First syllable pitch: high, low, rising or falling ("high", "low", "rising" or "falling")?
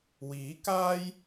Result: rising